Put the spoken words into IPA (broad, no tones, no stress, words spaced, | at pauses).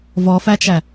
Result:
vɔfæt͡ʃæ